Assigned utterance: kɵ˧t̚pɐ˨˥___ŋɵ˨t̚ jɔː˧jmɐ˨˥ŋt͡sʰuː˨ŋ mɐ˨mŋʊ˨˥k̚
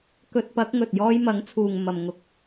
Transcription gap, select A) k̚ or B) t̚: A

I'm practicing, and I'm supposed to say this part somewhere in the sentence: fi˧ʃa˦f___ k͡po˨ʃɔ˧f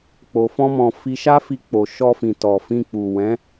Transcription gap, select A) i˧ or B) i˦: A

